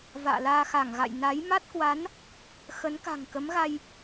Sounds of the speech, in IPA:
v a̰ː˧˨ l aː˧ x a˧˩ ŋ ɣ a̰˧˨ j n a˨˦ j m a˦˥ t̚ k w a˨˦ n | x ə˨˦ n k a̤˨˩ ŋ k ə˨˦ m ɣ a˧ j

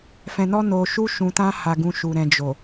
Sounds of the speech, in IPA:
f ɛ̃˧ n ɔ˦ n o˧ ʃ u˦ ʃ ũ˧ t ã˦ h a˧ ɡ ũ˧ ʃ u˨ ɾ ɛ̃˨ d͡ʒ o˨

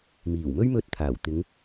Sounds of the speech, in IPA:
m iː˨˩ w m ɵ˥ ɥ m ɵ˧ t̚ t̪ʰ aː˨˩ w t̪ ɪ˨˧ ŋ

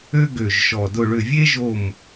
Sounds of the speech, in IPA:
ø˥ ɡ ø˨˩ ʒ ʃ ɔ˨˩ d ʊ˦˨ ɭ ʏ˦˨ vʲ e˥ ʒ o˦˨ m

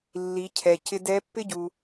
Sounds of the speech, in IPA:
lː i˩˧ cʰ ɛ˩ c ɪ˧ d ɛ˧˥ pː ɪ˥ ɟ u˩

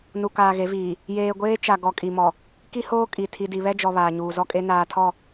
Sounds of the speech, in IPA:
n u˨ k aː˨ ɣ e˨˦ v iː˨ | j eː˨ ɡʷ eː˦ t͡ʃ a˨ ɡ ɔ˨ kʼ i˨ m ɔ˨ | k i˦ h oː˦ kʼ i˨ tʰ i˨ d i˨ β ɛ˦ d͡ʒ ɔ˨ β aː˨ ɲ uː˨ z ɔ˦ kʼ e˦ n aː˦ tʰ ɔ˦˨

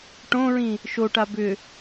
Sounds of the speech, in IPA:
ʈ õ ɹ ĩ | ʃ o ʈ a b ʏ

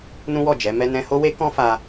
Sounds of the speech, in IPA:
n ũ˦ w ɔ˦˨ d͡ʒ ɛ˨˦ m ɛ˦ n ɛ̃˦ h o˦ w e˦ k ɔ̃˦ f a˧

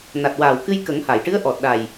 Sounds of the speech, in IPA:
n a˨˩ t̚ w aː˨˩ w k ɨ˧ j k ə˨˩˦ ŋ h a˨˩˨ j ʈ ɨ˧˥ ə̯ ʔ ɔ˨˩ t̚ ɗ a˨˩ j

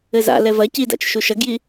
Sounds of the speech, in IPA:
ɘ z a̰ l ɛ v ɐ c i d a̰ t͡ʃ ʃ u ʃ ɐ ɡ j i

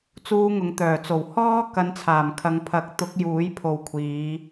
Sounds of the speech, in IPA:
t͡s uː˧ ŋ ʊ˨˧ ŋ t̪ œː˨˩ t͡s o˨˩ w h ɔː˥ k ɐ˨˧ n t͡sʰ aː˨˩ m kʰ ɐ˨˧ ŋ pʰ ɐ˨˥ k̚ t̪ ʊ˨˥ k̚ j uː˨˥ j pʰ o˨ w kʷʰ iː˨˧

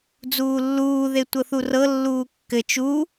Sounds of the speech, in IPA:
d͡z uː lː uː ð e tʷ ɤ θ u r ɤ lː uː kː ɘ t͡ʃ u

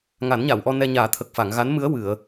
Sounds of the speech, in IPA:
ŋ a˨˩˦ n ɲ a˨˩˨ w ʔ ɔ˧ n ɛ˧ ɲ aː˨˩˦ t̪ʰ ə˨˩ k̚ f a˨˩˨ ŋ ɣ a˧˥ n m ɨ˧˥ ə̯ w ɨ˨˩˨ ə̯

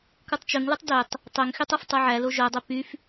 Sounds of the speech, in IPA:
k u tˤ t͡ʃ ɵ ŋ l u tˤ d ø tˤ | tˤ ø ŋ x y tˤ œ f tˤ œ ʕ æ l o ʒ œ dˤ ø p y f

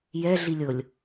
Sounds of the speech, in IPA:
j ɛ ɮ i lʲ ɤ lʲ

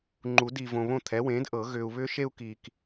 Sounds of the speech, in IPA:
ŋ͡ǃ u˨˩˦ d i˨ v õ˨ β õ˥˩ t̪ʰ ɛ˩˥ w ẽː˩˥ d ʔ ɤ˨˩˦ ɣ ʏː˨ u̯ β ʏː˦ ʃ e˦ u̯ k i˨ k

